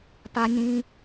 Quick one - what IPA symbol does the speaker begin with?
p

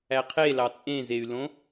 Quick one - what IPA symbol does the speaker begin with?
æ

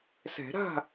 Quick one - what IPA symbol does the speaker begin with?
s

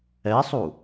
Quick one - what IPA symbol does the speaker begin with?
ɛ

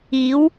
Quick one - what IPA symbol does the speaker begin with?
iː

